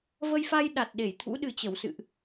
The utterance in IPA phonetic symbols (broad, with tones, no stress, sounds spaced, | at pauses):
v ə˧ j f a˧ j ɗ a˨˩ t̚ ɗ e˧˩ j t̪ʰ ṵ˧˥ ɗ ɨ˨˩ t͡ɕ ə˧˩ w s ɨ̰˧˨ ʔ